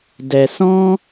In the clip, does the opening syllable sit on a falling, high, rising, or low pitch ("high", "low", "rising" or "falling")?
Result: low